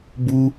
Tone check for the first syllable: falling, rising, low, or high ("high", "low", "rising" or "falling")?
high